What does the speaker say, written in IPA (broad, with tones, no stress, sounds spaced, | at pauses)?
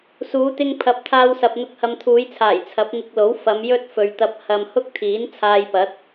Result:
s uː˨˧ t̪ ɪ˧ ŋ pʰ ɐ˨˥ p̚ t̪ʰ aː˧ w s ɐ˨ p̚ n̪ ʊ˧ k̚ h ɐ˧ m t̪ʰ uː˨˧ j t͡sʰ aː˨˩ j t͡sʰ ɐ˨˥ p̚ ŋ ɪ˧ k̚ l o˨˥ w f ɐ˨˧ m j ɵ˥ t̚ f ɵ˨ ɥ t̪ ɐ˧ p̚ h ɐ˨ m h ʊ˥ k̚ t̪ʰ iː˨˥ n t͡sʰ aː˧ j p ɐ˨˥ t̚